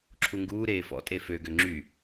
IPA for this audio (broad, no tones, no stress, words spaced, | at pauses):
ǁʰuŋɡuː ɾeːfɔ̰ tʼefø ɡøŋ͡ǁy